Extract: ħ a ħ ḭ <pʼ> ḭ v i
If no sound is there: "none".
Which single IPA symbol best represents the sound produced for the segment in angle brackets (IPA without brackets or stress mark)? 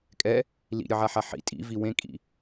tʼ